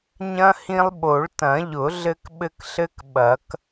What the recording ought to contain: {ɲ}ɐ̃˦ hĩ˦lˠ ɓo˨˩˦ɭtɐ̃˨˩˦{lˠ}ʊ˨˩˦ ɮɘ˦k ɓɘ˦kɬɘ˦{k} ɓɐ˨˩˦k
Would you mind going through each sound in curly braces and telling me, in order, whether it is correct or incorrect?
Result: correct, incorrect, correct

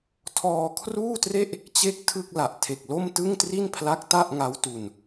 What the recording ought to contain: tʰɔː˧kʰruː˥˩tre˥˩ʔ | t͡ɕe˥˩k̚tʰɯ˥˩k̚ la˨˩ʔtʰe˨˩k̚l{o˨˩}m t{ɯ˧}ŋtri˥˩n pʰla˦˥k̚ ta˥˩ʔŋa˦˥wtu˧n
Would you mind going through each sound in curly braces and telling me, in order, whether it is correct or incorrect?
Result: incorrect, incorrect

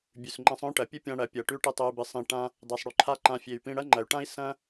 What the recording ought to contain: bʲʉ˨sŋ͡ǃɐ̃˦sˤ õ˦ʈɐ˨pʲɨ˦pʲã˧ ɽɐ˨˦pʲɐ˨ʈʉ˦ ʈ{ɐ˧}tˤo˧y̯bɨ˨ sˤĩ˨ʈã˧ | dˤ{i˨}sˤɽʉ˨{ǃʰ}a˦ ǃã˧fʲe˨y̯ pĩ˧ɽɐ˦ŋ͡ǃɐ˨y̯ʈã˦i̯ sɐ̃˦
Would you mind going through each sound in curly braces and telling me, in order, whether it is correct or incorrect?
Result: incorrect, correct, correct

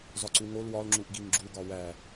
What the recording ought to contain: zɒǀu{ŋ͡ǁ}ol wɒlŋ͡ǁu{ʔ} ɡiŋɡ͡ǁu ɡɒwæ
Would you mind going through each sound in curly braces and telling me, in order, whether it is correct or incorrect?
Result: incorrect, correct

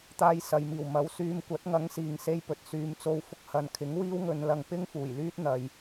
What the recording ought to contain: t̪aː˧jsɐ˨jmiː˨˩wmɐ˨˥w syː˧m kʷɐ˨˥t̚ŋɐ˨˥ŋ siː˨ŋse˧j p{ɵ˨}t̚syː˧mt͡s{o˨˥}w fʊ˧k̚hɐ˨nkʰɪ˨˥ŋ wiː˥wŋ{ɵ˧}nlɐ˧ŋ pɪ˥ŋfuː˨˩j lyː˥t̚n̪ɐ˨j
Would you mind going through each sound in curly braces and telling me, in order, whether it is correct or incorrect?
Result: correct, incorrect, correct

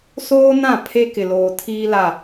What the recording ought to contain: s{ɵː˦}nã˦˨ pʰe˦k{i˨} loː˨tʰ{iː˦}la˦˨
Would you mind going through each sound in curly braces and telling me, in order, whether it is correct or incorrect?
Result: incorrect, incorrect, correct

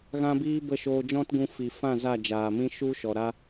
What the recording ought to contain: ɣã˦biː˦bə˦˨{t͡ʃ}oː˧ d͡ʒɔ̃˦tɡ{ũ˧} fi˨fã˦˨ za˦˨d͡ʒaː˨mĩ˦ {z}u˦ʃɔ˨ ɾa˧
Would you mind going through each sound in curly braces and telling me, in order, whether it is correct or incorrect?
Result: incorrect, correct, incorrect

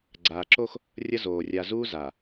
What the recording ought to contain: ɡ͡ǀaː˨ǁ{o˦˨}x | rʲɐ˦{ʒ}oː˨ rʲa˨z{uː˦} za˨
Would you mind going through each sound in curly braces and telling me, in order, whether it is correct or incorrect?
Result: incorrect, incorrect, correct

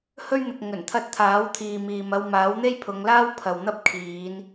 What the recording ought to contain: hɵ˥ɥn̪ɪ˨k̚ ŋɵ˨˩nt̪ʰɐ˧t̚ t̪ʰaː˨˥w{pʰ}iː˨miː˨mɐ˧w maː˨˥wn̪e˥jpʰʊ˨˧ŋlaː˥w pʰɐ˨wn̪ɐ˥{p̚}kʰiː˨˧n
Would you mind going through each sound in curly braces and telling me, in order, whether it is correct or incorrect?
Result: incorrect, correct

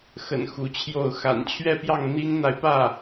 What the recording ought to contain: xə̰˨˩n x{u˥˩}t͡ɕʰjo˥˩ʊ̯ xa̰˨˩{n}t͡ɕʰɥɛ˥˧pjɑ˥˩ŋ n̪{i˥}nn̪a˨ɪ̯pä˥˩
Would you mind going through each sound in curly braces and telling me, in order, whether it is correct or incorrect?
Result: incorrect, correct, correct

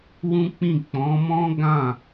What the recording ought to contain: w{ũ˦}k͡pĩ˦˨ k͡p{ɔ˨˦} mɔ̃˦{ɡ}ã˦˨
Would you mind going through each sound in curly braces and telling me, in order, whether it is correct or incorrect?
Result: correct, incorrect, correct

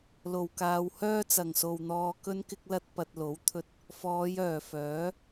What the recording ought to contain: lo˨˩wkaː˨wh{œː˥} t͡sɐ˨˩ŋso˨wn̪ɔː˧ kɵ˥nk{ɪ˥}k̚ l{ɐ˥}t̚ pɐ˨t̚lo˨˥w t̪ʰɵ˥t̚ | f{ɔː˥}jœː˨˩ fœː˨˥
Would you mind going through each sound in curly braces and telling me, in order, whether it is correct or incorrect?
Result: correct, correct, correct, incorrect

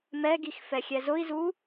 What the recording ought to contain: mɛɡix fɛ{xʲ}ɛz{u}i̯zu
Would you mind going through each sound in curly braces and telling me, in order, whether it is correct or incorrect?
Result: correct, incorrect

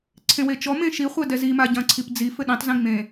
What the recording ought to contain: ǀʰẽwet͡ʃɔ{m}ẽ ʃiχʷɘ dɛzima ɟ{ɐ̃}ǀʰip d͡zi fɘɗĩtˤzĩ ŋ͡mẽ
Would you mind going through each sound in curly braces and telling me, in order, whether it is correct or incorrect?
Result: correct, correct

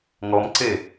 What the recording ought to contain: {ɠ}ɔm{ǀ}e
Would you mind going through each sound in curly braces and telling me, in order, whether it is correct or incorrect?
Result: incorrect, correct

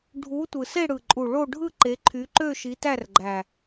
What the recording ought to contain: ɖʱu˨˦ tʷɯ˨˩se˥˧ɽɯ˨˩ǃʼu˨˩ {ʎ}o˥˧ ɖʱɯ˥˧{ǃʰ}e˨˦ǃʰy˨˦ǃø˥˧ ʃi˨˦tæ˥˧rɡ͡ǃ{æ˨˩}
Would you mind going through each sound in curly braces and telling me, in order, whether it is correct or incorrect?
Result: incorrect, incorrect, correct

